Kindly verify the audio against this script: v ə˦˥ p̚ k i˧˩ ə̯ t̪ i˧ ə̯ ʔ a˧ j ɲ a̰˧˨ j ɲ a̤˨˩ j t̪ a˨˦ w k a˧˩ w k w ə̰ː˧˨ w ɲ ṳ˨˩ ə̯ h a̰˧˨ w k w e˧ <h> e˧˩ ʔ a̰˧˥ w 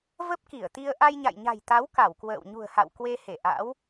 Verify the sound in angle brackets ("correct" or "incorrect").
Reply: correct